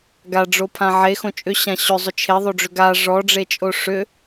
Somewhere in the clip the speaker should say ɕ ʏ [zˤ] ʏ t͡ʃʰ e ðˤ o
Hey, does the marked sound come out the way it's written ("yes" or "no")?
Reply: yes